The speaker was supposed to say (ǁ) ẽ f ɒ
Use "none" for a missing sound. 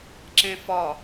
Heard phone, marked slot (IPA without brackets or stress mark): ǁ